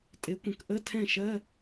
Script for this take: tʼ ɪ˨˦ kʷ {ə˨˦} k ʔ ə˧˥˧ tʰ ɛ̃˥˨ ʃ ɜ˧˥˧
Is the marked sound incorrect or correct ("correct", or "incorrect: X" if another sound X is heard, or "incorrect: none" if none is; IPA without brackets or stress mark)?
incorrect: ə̃˨˦